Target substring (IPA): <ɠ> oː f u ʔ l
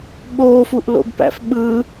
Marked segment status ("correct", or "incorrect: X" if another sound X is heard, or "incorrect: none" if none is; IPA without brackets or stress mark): incorrect: ɓ